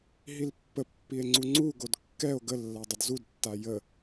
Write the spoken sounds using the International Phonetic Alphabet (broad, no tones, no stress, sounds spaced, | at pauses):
ɦ i l pː ə pː i e̯ ŋ͡ǀ u ŋ͡ǀ u ɡ o d kː ɛ o̯ ɡ ə lː a dˤ ə d z u d tː a j ə